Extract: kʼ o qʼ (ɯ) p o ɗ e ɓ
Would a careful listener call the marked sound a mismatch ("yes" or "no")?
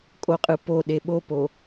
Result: no